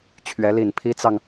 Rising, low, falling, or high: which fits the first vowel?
rising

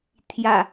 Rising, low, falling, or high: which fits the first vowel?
low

